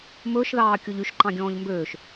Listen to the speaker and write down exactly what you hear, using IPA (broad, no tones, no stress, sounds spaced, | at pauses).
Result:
m ɵː ʃ ð ɑː kʲ o ʎ y ʃ ǃ ɑ̃ ɡʲ ɔ̃ː ʎ m b øː ʃ